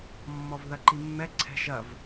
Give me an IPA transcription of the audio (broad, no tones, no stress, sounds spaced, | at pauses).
mː ɔ v ð ɐ ǃ i mː ɛ ǀʰ ɛ̤ ʒ ɐ v